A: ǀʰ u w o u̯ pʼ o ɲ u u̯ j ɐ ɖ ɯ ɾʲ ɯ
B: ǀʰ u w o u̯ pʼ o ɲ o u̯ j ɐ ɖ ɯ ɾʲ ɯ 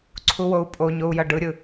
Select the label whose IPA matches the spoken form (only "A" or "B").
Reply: B